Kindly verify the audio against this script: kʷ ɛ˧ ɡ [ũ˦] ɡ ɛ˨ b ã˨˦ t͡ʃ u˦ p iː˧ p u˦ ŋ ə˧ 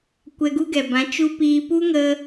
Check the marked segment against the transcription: incorrect: u˦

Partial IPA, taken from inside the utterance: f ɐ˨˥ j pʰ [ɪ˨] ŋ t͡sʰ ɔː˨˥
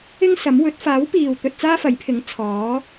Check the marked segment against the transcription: incorrect: ɪ˨˥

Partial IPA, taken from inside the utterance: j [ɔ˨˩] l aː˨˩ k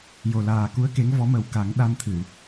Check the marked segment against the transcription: incorrect: o˨˩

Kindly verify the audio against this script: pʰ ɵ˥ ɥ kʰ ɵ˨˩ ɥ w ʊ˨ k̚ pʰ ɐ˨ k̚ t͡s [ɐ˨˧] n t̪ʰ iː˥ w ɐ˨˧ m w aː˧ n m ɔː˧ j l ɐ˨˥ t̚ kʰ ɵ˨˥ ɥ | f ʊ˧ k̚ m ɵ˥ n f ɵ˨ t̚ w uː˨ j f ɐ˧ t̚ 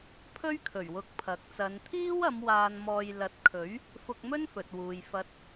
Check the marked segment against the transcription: correct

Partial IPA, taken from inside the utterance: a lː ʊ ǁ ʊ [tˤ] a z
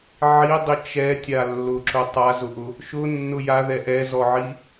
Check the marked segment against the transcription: correct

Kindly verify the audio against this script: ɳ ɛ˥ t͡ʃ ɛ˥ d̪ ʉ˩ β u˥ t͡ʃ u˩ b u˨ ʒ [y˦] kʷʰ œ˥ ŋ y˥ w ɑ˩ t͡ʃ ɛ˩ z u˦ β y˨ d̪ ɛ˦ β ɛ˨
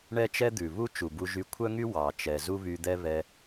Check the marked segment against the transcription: incorrect: y˨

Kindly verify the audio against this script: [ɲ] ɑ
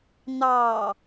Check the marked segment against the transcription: incorrect: n̪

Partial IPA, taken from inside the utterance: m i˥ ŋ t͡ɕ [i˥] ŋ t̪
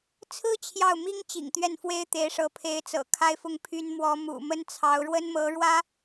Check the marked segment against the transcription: incorrect: ḭ˨˩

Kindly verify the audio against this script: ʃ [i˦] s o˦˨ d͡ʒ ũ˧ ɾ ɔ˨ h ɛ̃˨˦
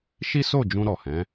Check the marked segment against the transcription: correct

